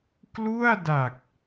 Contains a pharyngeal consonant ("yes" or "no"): no